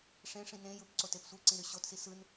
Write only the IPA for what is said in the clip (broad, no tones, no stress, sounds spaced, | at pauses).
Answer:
ʂ ẽ ʂ ĩ n ẽ j ɯ p ǀ o t e p sʷ ɯ ǀ ĩ ɾ y ɕ o t s i s ɯ n